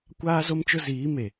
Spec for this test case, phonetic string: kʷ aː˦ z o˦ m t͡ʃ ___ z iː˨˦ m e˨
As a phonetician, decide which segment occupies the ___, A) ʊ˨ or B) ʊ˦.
B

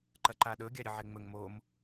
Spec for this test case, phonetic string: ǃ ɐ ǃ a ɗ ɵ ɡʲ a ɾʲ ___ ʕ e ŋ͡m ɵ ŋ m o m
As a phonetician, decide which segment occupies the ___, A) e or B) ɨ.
B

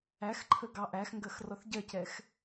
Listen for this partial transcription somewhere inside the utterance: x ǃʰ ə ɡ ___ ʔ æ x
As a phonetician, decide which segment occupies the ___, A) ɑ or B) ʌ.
A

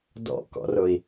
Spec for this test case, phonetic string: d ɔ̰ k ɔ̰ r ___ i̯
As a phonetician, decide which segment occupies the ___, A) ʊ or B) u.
A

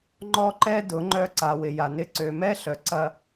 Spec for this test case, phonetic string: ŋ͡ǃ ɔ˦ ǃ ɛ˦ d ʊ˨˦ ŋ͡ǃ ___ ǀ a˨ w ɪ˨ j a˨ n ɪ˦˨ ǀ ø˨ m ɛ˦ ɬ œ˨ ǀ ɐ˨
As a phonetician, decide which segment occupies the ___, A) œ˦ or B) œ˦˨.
B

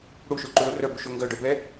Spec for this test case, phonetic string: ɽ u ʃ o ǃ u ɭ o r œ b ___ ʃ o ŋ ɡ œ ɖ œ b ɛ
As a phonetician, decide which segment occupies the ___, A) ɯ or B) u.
B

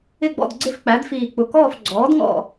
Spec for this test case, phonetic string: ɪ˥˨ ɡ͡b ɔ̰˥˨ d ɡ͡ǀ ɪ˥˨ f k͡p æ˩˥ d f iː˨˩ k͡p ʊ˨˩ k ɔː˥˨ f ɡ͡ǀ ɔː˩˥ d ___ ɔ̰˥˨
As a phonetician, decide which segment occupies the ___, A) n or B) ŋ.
B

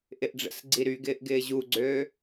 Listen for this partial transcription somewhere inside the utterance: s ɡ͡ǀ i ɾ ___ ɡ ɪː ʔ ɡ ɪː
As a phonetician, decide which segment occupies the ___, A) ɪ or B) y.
B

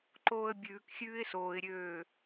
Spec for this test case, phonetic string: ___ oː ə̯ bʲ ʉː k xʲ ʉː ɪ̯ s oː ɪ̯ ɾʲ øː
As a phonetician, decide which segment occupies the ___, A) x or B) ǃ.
B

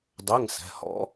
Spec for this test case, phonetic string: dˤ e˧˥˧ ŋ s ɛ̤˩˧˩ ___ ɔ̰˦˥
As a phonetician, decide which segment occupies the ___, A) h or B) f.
A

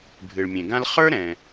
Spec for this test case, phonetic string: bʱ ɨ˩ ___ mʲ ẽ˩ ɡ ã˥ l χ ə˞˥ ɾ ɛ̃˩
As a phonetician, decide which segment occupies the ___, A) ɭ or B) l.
A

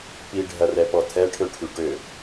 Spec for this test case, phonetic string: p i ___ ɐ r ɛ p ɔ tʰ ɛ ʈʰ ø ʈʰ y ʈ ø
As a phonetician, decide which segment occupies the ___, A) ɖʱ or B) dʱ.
A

